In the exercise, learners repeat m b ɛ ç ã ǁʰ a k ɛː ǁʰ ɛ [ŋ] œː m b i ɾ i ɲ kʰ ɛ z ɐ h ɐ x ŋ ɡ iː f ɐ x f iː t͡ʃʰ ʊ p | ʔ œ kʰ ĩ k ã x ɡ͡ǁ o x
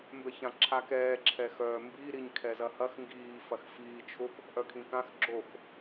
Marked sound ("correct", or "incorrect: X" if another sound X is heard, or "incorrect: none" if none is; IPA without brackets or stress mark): incorrect: x